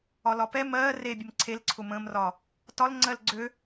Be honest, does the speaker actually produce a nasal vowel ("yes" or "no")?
yes